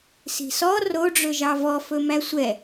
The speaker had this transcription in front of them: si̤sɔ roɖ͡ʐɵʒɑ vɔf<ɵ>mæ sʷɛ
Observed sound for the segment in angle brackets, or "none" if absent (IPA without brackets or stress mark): ɵ